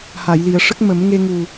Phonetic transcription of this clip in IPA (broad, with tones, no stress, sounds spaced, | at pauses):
h a˨˩˨ j l i˨˩˨ ə̯ ʂ ə˦˥ k̚ m ə˨˩˦ m ŋ e˧ ŋ u˨˩